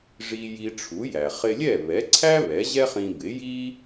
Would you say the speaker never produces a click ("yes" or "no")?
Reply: no